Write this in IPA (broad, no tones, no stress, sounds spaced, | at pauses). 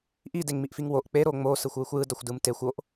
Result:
ʔ i d e ŋ m i ʔ f i ŋ w o ʔ k͡p e ɾ o ŋ͡m o s ɯ xʷ w ɯ xʷ j ɯ d ʌ xʷ d ɯ m t e xʷ o ʔ